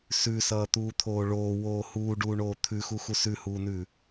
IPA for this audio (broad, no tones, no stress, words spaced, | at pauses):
sʉsʌːt̪uːt̪ʰoː ɭoːwoː huːɖuːɳoː t̪ʰʉxuxu sʉhuːnʉː